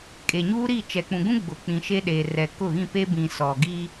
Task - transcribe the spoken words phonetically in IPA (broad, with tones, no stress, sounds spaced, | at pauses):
kʼ e˨ ɲ uː˦ ɾ i˦˨ t͡ʃ ɛ˨ k͡p ũ˨ ɡ ũ˦ ɡ͡b ʊ˨ k͡p ĩ˨ ʃ e˦ ɗ eː˨ r ɛ˨ k ʊ˦˨ ɣ ĩ˦˨ p e˦ b ĩ˨ s ɔ˨ ɡ i˦